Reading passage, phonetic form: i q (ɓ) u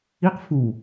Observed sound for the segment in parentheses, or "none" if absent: f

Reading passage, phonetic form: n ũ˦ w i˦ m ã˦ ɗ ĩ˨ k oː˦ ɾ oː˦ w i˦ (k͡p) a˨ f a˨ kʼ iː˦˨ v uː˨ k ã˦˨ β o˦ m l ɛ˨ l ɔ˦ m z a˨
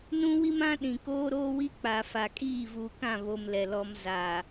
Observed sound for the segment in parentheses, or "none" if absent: k͡p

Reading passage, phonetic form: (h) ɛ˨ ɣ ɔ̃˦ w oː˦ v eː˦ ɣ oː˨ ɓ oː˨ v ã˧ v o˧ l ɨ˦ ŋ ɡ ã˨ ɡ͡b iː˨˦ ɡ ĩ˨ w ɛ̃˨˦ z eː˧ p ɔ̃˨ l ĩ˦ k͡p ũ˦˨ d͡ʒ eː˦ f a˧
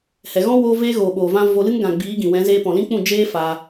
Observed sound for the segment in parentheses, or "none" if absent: h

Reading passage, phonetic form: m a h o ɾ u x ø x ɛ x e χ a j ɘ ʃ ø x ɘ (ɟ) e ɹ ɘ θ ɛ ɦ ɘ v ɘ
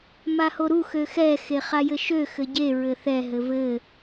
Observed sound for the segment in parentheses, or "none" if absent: ɟ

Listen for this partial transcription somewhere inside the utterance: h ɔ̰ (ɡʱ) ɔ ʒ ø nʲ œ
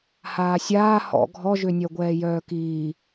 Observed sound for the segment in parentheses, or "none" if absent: ɡʱ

